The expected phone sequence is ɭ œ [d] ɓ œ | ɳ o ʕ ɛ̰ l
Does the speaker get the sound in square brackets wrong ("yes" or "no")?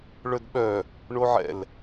no